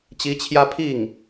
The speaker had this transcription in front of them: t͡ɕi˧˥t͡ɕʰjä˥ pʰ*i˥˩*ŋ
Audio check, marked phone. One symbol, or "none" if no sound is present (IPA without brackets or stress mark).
i˥˩